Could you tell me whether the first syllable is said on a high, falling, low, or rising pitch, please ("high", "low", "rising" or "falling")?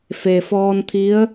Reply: low